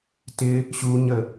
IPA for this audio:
tɪ | ɕu ɲə

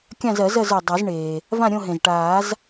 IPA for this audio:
kʲã˥˧zɜ˨˩˦zɜ˥˧zə˞˩ dˤɜ˨˩˦zɳeː˩ | vã˥˧ɾʲõ˥˧ɦẽ˩z ʈaː˨˩˦z

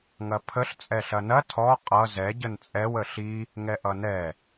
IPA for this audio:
ŋɐpʰəɬ t͡sʼɛɬɐnɐ tʰɔ qʼʌ zɛ ɟənt͡sʼɛw əɬi | ŋɛʔʌnɛ

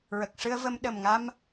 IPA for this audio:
ɹə˨˩k̚ʂɨ˧ə̯və˧m ɗə˨˩mŋa˧m

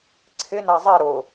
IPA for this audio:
ǀʰɪna zˤɛ ɾʊ

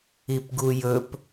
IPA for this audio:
ipɡujɵp

